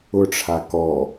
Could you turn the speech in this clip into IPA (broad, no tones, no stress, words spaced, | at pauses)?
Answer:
ʊʈ͡ʂʰa kɔ